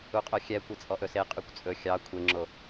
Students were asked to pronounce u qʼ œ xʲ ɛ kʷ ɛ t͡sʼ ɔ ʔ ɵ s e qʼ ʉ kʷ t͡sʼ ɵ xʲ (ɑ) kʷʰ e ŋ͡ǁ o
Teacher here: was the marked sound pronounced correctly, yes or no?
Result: yes